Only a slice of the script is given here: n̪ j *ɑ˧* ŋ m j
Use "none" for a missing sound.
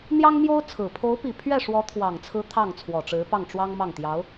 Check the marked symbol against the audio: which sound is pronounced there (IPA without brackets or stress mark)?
ɑ˥